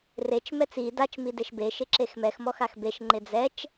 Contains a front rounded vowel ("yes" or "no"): no